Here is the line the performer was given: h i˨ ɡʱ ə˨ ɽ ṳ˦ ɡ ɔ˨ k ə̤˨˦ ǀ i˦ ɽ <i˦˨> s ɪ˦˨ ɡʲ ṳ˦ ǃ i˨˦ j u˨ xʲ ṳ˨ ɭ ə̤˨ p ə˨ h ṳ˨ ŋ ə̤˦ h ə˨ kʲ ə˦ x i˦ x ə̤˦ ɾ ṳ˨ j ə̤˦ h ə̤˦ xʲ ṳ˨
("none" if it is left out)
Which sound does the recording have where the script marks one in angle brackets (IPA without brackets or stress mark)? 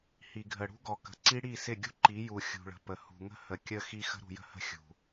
i˦˨